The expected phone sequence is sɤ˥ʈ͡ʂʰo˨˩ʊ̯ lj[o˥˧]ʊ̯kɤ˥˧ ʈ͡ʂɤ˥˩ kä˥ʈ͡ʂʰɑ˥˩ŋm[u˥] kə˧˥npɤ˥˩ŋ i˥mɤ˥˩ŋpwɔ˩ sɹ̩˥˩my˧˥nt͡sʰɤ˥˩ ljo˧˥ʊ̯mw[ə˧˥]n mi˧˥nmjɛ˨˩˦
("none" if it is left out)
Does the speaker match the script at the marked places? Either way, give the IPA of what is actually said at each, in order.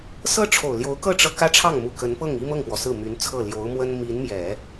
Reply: o˧˥, u˨˩, ə˥

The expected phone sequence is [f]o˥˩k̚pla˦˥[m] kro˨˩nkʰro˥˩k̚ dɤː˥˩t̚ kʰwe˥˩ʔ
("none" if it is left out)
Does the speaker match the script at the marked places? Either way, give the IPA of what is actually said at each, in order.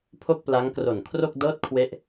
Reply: pʰ, ŋ

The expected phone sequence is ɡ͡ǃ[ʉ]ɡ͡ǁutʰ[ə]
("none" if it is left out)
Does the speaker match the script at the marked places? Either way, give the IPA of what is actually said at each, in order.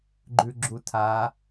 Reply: ʉ, a

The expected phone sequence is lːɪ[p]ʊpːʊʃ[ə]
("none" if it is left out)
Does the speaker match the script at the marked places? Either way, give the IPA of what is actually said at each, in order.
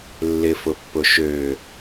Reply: f, ø

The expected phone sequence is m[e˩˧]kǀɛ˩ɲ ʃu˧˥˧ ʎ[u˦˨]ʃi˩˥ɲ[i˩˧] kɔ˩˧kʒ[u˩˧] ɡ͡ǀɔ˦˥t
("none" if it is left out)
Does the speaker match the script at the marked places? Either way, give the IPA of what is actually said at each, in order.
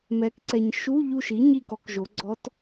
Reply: ɛ˩˧, u˦˨, i˦˨, o˩˧

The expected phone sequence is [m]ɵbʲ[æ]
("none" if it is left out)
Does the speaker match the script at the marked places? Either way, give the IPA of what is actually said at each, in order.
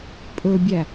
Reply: pʼ, æ

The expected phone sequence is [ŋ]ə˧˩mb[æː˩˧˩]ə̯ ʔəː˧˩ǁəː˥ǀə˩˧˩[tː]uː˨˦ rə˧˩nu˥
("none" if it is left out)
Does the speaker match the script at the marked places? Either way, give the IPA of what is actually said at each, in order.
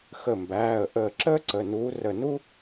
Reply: x, æː˩˧˩, n

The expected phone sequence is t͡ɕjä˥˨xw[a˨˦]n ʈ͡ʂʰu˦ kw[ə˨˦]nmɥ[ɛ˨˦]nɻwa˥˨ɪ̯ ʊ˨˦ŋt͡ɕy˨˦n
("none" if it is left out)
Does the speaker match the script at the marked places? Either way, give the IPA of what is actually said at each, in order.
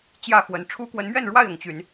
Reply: ə˨˦, ə˨˦, ɛ˥˨

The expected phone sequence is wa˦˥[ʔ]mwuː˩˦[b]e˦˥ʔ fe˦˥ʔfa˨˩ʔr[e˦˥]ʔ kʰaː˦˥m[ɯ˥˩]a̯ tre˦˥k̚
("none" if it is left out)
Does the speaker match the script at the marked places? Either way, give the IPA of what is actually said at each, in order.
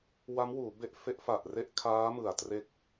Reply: none, b, e˥˩, ɯ˨˩

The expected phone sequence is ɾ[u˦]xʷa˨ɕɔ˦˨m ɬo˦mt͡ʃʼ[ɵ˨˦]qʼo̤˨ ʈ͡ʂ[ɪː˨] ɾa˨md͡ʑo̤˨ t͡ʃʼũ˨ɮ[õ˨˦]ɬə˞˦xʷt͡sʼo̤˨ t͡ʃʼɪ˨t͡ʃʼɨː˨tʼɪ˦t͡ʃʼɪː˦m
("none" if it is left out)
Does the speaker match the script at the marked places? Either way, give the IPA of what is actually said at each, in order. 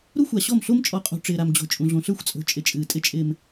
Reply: u˦, ɔ˨˦, ɪː˨, õ˨

